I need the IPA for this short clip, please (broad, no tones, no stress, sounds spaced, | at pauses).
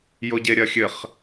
j o ɟ e ɾʲ ɐ xʲ ɘ χ